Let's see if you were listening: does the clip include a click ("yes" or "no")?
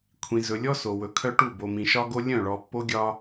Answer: no